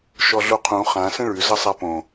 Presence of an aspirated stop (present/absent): present